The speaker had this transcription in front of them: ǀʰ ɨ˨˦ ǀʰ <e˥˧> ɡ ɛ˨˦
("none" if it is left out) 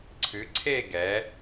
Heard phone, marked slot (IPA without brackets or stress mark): e˥˧